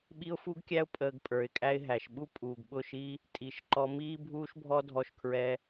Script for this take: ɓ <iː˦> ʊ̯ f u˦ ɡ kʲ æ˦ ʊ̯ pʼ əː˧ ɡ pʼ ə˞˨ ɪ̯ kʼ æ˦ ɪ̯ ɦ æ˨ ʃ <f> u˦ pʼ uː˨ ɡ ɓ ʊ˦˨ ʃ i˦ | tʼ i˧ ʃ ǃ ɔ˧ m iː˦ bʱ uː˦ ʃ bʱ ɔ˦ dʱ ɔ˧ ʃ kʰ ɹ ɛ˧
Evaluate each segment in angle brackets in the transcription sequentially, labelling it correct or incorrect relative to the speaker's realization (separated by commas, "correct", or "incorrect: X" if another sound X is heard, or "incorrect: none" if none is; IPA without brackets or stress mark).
incorrect: i˦, incorrect: ɓ